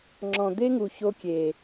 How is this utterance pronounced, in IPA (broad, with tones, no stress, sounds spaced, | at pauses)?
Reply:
ŋ͡ǁ ɔ̃˨ d̪ e˦ ŋ u˨ ç o˦ kʲ e˨